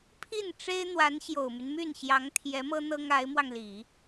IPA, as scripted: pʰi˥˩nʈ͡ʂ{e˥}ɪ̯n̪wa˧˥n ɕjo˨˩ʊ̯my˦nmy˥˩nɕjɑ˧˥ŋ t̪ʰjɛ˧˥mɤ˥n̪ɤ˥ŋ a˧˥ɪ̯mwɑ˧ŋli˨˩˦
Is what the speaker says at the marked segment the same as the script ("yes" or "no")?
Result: yes